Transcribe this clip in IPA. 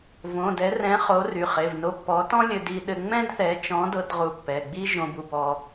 v õ˩˧˩ d ɛ˨˥ r ɛ̃˨˥ χ o˨˥ r y˩˧˩ χ e˩˧˩ v n o˧ pː ɔ˨˥ t ɔ̃˥ lʲ ɘ˧ d i˧ ɗ ɘ˧ ŋ͡m ɛ̃˥ d θ ɛ˨˥ t͡ʃ ɔ̃˨˥ d ɤ˧ d ʁ u˨˥ pː ɛ˩˧˩ ɡ͡b i˥ ʒ õ˧ b u˧ b ɔ˧

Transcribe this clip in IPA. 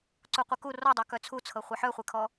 ǀ u qʷ e k u r ɔ dˤ œ k œ t͡sʰ u t͡sʰ ɤ χʷ ɛ ħ œ χʷ e kʰ ɔ

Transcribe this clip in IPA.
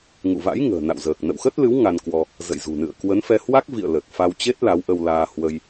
ŋ ṵ˧˨ v a̰˧˥ j ŋ ə̤ː˨˩ n a̰˧˨ w z əː˨˩ k̚ n ə̰˧˨ w x ə˦˥ t̚ l ɨ˨˦ w ŋ a˧ n k w ɔ˧ | z ə̰˧˨ j z ṳ˨˩ n ɨ̰˧˨ ə̯ k w ə˨˦ n f ɛ˧ h w a˦˥ k̚ v ḭ˧˨ ə̯ l ə˨˩ t̚ f a˧ w t͡ɕ e˦˥ t̚ l a˨˦ w ʔ ə˧ w l aː˧ h w ə˧ j

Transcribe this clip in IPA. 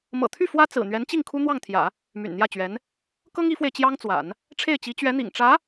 m ɤ̰˨˩ t̪ʰ y˥˩ f w ä˥ t͡s ɹ̩˨˩ n̪ ɥ ɛ˧˥ n t͡ɕ i˥˩ ŋ kʰ u˥ n̪ w ɑ˥˩ ŋ t̪ʰ j ä̰˨˩˦ | m y̰˨˩ n n̪ j ä˥˩ t͡ɕ ɥ ɛ˧˥ n | k ɤ˥ ŋ i˧˥ f w e˧ ɪ̯ t͡ɕ j ɑ˥ ŋ t͡s w a̰˨˩˦ n | ʈ͡ʂʰ e˥˩ ɪ̯ t͡ɕ i˧˥ t͡ɕ ɥ ɛ˧˥ n̪ ḭ˨˩ ŋ ʈ͡ʂ ä˧˥

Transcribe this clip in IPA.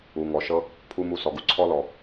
u˨ ŋ ɔ˨ ʃ ɤ˦ | pʰ u˦ m u˧ s ɔ˨ ɡ u˨ ǀʰ ɔ˦ l ɔ˨

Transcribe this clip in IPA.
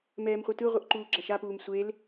m ɛː m χʷ ɯ t ɯ ʁʷ ɯ ʔ ǃ uː ɡ͡ǁ a ʃ a p uː m sʷ e l

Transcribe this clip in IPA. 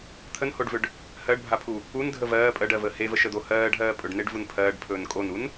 t̪ʰ ə n h o ɖ v ʏ ɖ | h ɜ ɖ bʱ a pʰ u | u n dʱ ə v ɜː pʼ ɜ ɖ ɜ v əː h e v ə ʃ ə d̪ o h ɜː ɖ ɦ ɜː pʼ ɵ ɖ n e ɖ v u n pʰ ɜː ɖ pʰ ɵː n kʼ o n u n

